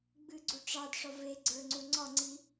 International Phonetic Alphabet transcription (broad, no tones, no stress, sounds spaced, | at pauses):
ɡ͡b ɨ ɡ͡ǀ u ʈ͡ʂ ɑ d ʂ ɒ v e ɡ͡ǀ ə˞ ŋ͡ǀ u ŋ͡ǀ ɒ ŋ͡ǀ i